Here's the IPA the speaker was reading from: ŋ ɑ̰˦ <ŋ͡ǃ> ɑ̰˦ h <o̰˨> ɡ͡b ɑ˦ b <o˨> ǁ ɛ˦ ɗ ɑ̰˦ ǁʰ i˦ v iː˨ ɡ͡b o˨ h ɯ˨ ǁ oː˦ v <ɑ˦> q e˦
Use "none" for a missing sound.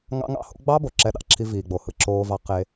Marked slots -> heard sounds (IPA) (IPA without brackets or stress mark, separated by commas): ŋ, o̰˦, o˨, ɑ˦